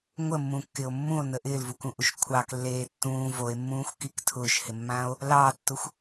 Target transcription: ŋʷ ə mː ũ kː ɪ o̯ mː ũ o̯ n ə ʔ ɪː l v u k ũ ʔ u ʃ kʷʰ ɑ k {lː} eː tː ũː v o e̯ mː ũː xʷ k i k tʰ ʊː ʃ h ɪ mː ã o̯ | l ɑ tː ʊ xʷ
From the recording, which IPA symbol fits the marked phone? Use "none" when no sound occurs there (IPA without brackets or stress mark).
lː